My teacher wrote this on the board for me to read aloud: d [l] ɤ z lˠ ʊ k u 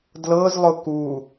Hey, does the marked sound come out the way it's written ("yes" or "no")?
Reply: yes